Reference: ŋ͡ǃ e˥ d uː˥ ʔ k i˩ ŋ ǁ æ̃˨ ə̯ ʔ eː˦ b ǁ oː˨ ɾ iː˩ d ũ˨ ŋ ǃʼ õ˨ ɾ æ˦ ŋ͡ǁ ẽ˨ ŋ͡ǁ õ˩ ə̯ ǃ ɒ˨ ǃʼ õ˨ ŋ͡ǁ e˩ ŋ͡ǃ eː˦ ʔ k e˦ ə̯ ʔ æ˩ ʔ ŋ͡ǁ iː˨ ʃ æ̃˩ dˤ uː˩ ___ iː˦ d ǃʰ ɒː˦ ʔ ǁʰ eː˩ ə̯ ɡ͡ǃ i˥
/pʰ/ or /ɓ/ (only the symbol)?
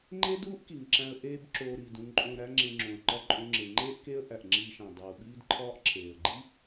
ɓ